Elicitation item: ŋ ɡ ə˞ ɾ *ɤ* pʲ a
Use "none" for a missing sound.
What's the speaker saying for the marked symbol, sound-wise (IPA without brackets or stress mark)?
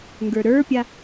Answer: ə˞